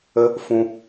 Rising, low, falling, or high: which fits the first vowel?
high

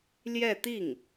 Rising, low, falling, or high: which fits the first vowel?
falling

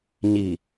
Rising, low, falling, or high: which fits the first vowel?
low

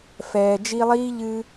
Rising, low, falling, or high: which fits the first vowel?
low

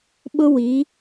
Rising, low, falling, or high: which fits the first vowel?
high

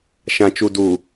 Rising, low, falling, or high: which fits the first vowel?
low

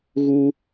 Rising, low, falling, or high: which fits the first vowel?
high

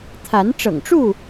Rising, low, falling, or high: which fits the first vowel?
rising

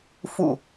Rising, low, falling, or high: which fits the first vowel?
low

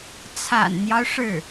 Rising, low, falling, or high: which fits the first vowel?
low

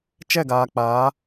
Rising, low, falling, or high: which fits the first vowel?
falling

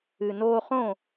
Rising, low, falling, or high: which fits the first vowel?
low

